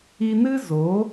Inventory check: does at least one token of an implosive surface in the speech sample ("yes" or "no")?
no